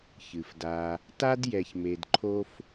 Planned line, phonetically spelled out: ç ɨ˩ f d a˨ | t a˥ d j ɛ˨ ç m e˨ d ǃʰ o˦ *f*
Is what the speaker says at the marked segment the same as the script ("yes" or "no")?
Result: yes